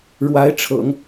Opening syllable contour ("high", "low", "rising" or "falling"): rising